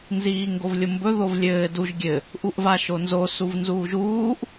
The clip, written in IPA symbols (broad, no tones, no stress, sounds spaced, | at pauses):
n z iː ŋ ɡ o v lʲ o m b ɵ ð o v lʲ ɘː d u ʒ ɡʲ ɘ | ʔ u ʔ v a ʃ o n z o s u v n z uː ʒ uː ʔ